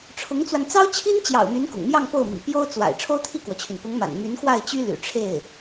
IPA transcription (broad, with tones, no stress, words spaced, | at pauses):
ʈ͡ʂʰʊ˧˥ŋt͡swa˧n t͡sɑ˥ʊ̯t͡ɕʰi˥nt͡ɕjɑ̰˨˩ʊ̯ my˧˥nkʊ̰˨˩ŋmjɑ˥˧ŋ po˥˩ʊ̯ mḭ˨˩pjo˥ʊ̯t͡swa̰˨˩ɪ̯ ʈ͡ʂʰo˥ʊ̯t̪ʰi˥˩kwɔ˩t͡ɕʰy˩n pʊ˧˥ŋma̰˨˩n my˧˥nkwa˥˩ɪ̯t͡ɕy˥ ly̰˨˩ʈ͡ʂʰe˥˩ɪ̯